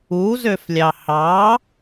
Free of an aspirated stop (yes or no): yes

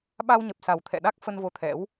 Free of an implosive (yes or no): no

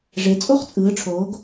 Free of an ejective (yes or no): no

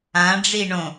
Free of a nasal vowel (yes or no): no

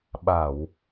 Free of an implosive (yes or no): no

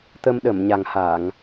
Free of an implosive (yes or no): no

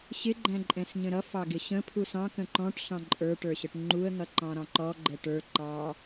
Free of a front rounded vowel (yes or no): yes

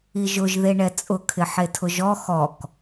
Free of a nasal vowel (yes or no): yes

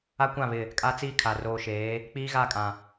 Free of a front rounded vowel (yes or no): yes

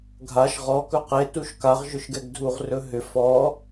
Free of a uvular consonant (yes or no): no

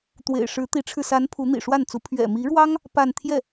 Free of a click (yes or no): yes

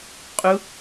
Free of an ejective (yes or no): no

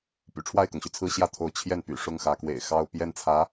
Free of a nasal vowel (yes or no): yes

